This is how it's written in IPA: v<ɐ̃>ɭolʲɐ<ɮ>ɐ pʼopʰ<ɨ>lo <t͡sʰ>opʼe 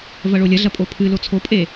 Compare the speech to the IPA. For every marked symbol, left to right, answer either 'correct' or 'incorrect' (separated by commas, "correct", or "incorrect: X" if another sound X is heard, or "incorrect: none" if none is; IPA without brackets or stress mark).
incorrect: ɐ, correct, correct, correct